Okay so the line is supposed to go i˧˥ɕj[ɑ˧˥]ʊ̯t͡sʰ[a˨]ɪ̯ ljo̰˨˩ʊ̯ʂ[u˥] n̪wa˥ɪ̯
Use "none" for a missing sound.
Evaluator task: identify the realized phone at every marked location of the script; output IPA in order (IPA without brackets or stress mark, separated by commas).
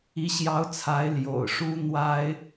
ɑ˧˥, a˧˥, u˥